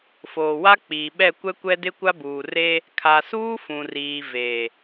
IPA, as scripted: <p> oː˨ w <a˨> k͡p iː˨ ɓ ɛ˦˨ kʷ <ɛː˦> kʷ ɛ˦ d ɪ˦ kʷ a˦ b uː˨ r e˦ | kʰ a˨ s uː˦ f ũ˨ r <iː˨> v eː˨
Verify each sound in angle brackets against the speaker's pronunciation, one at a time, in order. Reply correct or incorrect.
incorrect: f, incorrect: a˦, incorrect: ɛ˦, correct

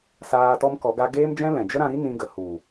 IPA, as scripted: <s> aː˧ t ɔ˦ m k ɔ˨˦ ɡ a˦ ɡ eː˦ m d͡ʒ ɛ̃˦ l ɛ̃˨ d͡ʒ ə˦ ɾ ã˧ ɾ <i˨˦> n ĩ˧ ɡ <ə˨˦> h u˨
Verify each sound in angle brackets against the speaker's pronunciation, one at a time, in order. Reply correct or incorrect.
correct, incorrect: i˦, incorrect: ə˨

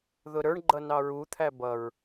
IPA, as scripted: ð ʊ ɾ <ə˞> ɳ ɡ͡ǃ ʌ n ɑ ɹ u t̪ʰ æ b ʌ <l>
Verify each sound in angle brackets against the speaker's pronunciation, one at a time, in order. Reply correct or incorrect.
correct, incorrect: ɹ

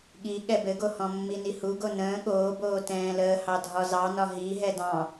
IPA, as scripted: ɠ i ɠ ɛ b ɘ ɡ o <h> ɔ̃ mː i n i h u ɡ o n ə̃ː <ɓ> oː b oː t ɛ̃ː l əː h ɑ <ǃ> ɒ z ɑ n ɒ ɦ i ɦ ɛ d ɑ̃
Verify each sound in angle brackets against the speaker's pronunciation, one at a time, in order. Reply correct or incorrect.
correct, incorrect: ɠ, incorrect: dʱ

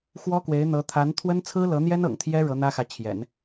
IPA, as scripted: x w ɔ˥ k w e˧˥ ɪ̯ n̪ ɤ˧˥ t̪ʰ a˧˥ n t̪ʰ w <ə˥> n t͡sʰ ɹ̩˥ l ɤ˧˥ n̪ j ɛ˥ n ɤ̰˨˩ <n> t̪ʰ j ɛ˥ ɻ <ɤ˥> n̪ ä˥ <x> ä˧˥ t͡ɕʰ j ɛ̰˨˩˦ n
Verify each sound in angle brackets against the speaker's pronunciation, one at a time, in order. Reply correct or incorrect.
correct, incorrect: ŋ, incorrect: ɤ˧˥, correct

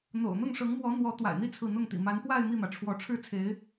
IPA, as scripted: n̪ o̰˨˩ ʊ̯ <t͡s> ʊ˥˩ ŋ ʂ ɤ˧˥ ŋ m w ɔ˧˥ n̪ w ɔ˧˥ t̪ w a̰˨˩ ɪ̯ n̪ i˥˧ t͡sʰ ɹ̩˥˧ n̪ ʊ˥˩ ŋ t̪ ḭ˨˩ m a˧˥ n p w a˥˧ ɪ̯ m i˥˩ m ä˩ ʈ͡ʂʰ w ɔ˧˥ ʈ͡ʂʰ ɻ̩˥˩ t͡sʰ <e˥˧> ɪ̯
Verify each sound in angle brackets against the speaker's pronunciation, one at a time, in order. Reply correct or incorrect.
incorrect: n̪, incorrect: e˧˥

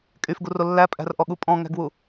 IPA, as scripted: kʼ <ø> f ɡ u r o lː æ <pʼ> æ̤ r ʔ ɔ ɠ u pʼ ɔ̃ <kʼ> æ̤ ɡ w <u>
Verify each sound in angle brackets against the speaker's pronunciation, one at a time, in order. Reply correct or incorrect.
incorrect: y, correct, incorrect: ŋ, correct

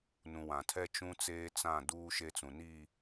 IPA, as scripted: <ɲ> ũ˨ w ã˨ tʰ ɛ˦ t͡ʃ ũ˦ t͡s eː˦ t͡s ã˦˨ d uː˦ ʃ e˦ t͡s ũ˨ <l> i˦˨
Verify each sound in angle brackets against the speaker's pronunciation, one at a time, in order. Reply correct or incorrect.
incorrect: n, incorrect: n

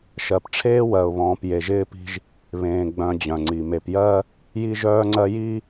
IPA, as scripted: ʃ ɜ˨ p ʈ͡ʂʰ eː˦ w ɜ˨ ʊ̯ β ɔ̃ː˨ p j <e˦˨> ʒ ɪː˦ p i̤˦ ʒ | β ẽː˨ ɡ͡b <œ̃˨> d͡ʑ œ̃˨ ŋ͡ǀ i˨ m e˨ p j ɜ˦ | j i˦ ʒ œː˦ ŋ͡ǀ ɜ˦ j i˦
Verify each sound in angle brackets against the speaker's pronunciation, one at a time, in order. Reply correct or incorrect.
incorrect: e˨, correct

